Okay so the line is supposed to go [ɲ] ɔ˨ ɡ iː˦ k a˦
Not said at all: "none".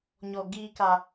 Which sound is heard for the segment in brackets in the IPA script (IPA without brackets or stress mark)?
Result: ɲ